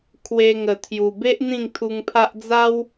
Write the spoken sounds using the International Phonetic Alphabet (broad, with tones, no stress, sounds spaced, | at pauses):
kʰ w e˧ ŋ ə˨˩ t̪ʰ j u˨˩ b e˦ ʔ n̪ ĩ˥˧ ŋ t̪ʰ u˧ ŋ pʰ a˦ ʔ d͡z a˦ w